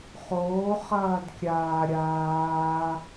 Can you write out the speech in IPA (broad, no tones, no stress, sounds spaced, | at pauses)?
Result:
χ oː χ ɐː d kʲ aː ɾʲ aː